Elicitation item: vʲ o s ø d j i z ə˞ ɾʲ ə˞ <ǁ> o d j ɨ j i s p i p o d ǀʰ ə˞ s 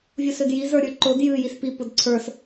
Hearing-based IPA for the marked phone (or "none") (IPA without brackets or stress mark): ǃ